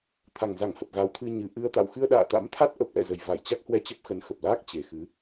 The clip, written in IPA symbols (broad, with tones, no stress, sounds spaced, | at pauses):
t̪ʰ a˨˩ ŋ z a˧˩ ŋ h ə˨˩ p̚ ɣ a˨˦ w t̪ʰ ɨ˧ ɲ ɨ˨˩ ʔ ɨ˧ ə̯ t̪ a̰˧˨ w x ɨ˧ ə̯ ɗ a̰ː˧˨ t̪ a̰˧˥ m t̪ʰ a˦˥ t̚ ʔ ə˨˩ p̚ ʔ ɛ̰˧˨ z ə˨˩ j v a˧˩ j t͡ɕ a˦˥ k̚ h w ɛ˧ t͡ɕ ə˦˥ p̚ x ə˨˦ n x ə˨˩ p̚ l aː˦˥ k̚ t͡ɕ e˨˩ x ɨ˨˦